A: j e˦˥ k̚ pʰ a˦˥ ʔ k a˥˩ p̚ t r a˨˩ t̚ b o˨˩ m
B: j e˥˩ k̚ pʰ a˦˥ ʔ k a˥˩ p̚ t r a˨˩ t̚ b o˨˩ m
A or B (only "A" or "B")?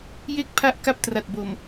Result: B